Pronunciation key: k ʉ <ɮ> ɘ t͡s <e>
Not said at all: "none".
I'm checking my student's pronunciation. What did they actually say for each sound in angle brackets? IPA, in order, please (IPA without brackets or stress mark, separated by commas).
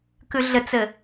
ɮ, ɘ